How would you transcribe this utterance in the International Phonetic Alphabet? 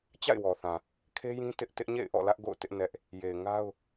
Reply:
t͡ɕ a̰˦˨ ɪ̯ w ɔ˨ θ ã˨ | kʰ e˦ j ĩ˦ t ɪ˦ ʔ t ɪ˦ ʔ ɲ ḛ˦˨ ɪ̯ ʔ ɔ̰˦˨ l ä˦ ʔ ɡ o̰˦˨ ʊ̯ t ɪ˦ ʔ n ɛ˦ ʔ | j e˨ ɪ̯ ŋ a˦ ʊ̯

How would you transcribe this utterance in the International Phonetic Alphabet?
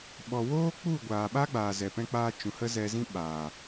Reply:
ɓ ɔ˨ w oː˦ k͡p u˦˨ ɡʷ aː˨ ɓ a˦ ɡ͡b aː˨ z ɛ˨ p ɛ̃˧ k͡p aː˧ t͡ʃ ũ˨ h ə˦ z ɛ˧ z ĩ˦ ɓ aː˨

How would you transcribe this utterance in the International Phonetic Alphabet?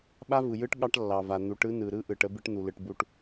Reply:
ɓ a˦ v ɯ˨ j ɯ˦ ʈ ɠ ɑ˦ ʈ lː ɑ˨ v a˨ n̪ u˨˦ ʈ ɯ˦ n ɯ˨ ɾ ɯ˦ ʔ ɯ˨ ʈ ə˦ b ɨ˦ ʈ n̪ u˨ l ɯ˨ ʈ b u˨ ʈ

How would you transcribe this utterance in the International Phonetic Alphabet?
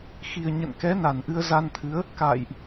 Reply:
x i˨˩ ə̯ ɲ ə̰˧˨ n k ɛ˨˦ n a˨˩ n ʔ ɨ˧ ə̯ z a˧ n t̪ʰ ɨ˨˦ ə̯ | k a̰ː˧˨ j ʔ

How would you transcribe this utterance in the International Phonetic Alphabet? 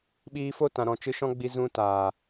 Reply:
ɓ iː˧ f o˦ t ã˨ ɾ ɔ̃˨ t͡ʃ ɨ˧ ʃ ɔ̃˦ ɡ͡b i˧ z ũ˧ t a˨

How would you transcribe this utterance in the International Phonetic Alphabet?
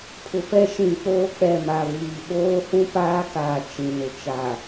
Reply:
pʰ ʊ˨ p ɛ˦ ʃ ĩ˨ k͡p oː˦ k͡p ɛ˨ m a˨ v iː˨ ɓ oː˦ h ũ˦ p aː˦ k aː˨ t͡ʃ ĩ˨ n ʊ˨ t͡ʃ a˨

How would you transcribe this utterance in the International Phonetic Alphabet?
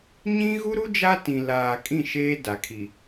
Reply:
ɲ ĩ˦ ɣ u˦ ɾ u˦ d͡ʒ a˦ t ĩ˨ l aː˨ kʼ ĩ˦˨ ʃ eː˦ d a˨ kʰ i˨

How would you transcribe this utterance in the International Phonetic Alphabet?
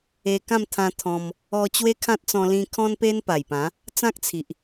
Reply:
e˧ k ã˥˧ m t̪ʰ ã˧ t̪ʰ ɔ̃˧ m | ɔ˧ t͡ɕ w e˦ kʰ ã˦ t̚ t͡s ɔ̃˧ l ĩ˦ kʰ ɔ̃˦ n p e˦ n p a˨˩ j p ã˨˦ | t͡s ã˦ k̚ t͡sʰ i˨ ʔ

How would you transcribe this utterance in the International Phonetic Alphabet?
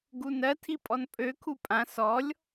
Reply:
ɡ u n ɜ tʰ i pʼ ɔ n pʼ ø kʰ u pʼ ã s ɔ lʲ

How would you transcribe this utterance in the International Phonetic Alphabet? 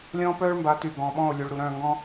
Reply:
lʲ ɔ̃ː˦ p œː˦ ɭ m b a˨˦ t y˨ ɡ ɔ̃˨ ɓ ɔ̃˦˨ o̯ lʲ u˨ ɭ ɾ u˨ ɾ œ̃˦˨ ŋ ɡ ɔ̃˦

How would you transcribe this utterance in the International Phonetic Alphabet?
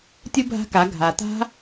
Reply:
tʲ u˧ bʱ a̤˧ k a˩˧ ɡʱ a˩ t a̤˧

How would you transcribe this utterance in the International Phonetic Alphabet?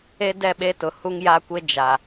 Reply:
e˦ d ɛ˦˨ ɓ e˦ t ʊ˨ h u˦ ŋ j a˦ kʷ e˦ d͡ʒ a˨

